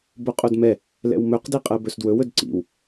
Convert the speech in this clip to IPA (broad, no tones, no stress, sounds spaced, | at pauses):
b o qʼ o d m ɛ | l ɛ̰ w m ɵ q d i qʼ ɜ b ɵ s d w ɵ w ɵ d ǀ ḭ w